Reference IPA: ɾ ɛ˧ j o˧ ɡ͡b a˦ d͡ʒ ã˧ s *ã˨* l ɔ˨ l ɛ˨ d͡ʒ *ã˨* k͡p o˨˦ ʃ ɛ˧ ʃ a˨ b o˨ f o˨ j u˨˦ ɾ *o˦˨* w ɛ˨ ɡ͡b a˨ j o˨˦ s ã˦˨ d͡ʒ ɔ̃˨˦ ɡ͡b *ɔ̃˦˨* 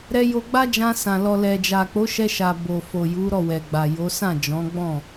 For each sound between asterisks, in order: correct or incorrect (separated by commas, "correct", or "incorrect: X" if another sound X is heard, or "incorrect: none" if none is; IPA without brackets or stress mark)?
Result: correct, incorrect: a˨, incorrect: ɔ˦˨, correct